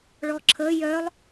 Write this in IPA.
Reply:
ɭ ɔ ǁʰ ə j œ lˠ

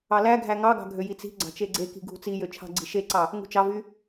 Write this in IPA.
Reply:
ɑ l æ ɡʱ æ ŋ ɑ ɡ ɑ̤ ɡʱ ø j i t͡s i̤ ɡ͡ǀ ɑ̤ t͡ʃ e ɡ͡ǀ e k i̤ ɡʱ ṳ t͡s i j ø t͡ʃʰ ɑ̤ ɡ͡ǀ i̤ ʃ e ǀ ɑ | ŋ ṳ t͡ʃ ɑ v y

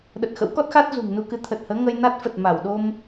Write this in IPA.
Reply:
ɗ ə˨˩ t̚ x ə̰˧˥ w k ɔ˦˥ t̚ x a˦˥ t̚ z ṳ˨˩ ŋ n u˧ k ɨ˨˦ t̪ʰ ə˨˩ t̚ h əː˨˦ ŋ ə˧ j n a˦˥ t̚ f ə˨˩ t̚ m a˧˩ w ɗ o˧ m

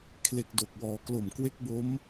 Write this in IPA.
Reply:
kʰ l e˨˩ k̚ d o˨˩ k̚ w ɔː˩˦ k l o˨˩ m k w e˦˥ k̚ b o˦˥ m

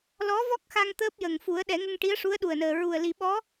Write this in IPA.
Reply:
l ɔ˧˥ v ɔ˦˥ k̚ x a˧ ŋ t̪ əː˦˥ p̚ j ə˨˩ ŋ f u˨˩˦ ə̯ ɗ ɛ˨˩˦ ŋ ə˧ ŋ ʈ i˧˥ ə̯ ʂ u˧˥ ə̯ ɗ u˨˩ ə̯ n əː˨˩ ɹ u˨˩ ə̯ l i˨˩˦ ɓ ɔ˧˥

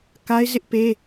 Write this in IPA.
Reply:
k a˦ ɪ̯ z ɪ˦ ʔ p e˦

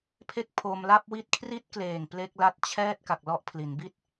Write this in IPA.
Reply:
pʰ e˦˥ k̚ pʰ o˧ m l a˥˩ p̚ w i˥˩ t̚ kʰ r i˦˥ t̚ k l eː˨˩ ŋ p l e˦˥ k̚ l a˦˥ t̚ t͡ɕʰ ɛː˥˩ t̚ k a˨˩ k̚ l ɔ˦˥ ʔ pʰ l i˩˦ n b i˥˩ t̚

